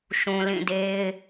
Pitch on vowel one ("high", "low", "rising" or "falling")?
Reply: low